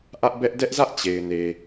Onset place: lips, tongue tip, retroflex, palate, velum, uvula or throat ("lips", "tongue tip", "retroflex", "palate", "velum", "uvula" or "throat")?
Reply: throat